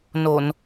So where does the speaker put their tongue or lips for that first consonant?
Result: tongue tip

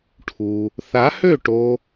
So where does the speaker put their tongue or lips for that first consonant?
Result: retroflex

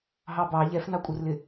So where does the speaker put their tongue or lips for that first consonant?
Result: throat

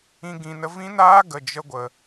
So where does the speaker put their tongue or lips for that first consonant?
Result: velum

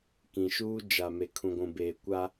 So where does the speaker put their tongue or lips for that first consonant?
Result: velum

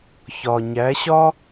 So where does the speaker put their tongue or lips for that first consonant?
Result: palate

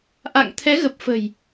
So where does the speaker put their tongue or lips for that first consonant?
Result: throat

